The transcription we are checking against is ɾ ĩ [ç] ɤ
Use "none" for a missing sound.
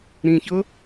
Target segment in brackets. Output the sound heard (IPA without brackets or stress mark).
ç